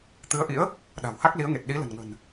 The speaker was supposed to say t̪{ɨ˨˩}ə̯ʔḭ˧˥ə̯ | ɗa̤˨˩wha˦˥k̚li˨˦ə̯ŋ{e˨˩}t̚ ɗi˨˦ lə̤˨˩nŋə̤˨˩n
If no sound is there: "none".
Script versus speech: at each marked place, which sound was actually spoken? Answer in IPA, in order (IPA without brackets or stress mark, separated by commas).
ɨ˨˦, e˨˩